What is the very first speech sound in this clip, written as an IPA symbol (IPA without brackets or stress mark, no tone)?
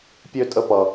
pʲ